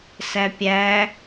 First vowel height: low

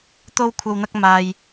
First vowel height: mid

